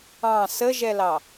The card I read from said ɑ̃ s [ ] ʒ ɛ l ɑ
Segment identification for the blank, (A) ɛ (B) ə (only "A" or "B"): B